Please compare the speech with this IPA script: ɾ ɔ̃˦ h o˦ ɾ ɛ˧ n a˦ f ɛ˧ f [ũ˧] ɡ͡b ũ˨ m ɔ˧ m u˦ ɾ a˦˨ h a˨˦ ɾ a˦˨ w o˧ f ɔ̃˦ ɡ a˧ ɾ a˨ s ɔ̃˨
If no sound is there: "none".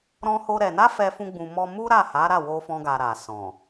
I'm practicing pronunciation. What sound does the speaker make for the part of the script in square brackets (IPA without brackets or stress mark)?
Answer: ũ˧